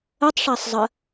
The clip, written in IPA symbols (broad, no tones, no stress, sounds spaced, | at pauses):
ə tˤ ʂ a sˤ zˤ ə